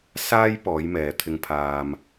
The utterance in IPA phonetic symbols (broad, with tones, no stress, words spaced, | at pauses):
saː˥j pɔː˨˥jmɛː˨ t̪ʰɪ˧ŋpʰaː˧m